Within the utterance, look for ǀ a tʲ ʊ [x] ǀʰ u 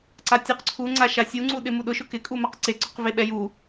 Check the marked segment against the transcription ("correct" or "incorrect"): incorrect